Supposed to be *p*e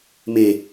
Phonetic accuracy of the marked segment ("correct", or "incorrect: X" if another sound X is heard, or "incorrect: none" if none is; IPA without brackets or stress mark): incorrect: m